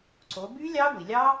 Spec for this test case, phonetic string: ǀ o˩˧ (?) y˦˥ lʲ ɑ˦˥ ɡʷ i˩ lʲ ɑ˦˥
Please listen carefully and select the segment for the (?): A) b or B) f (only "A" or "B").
A